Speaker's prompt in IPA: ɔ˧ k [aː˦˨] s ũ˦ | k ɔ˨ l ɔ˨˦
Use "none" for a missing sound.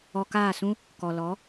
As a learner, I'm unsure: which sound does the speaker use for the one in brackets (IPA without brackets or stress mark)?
aː˦˨